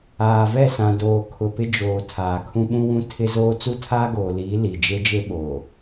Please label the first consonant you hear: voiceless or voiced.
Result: voiced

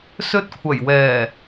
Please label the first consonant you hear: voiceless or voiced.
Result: voiceless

